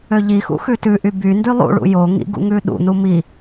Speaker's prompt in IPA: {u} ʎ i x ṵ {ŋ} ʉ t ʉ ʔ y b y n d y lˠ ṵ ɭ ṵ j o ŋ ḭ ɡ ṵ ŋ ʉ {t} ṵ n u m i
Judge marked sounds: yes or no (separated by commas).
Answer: no, no, no